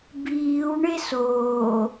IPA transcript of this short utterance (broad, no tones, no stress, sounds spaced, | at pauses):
b iː w ɳ e s oː